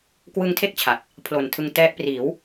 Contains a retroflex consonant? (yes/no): no